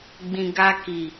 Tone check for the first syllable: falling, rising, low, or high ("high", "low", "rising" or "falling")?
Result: low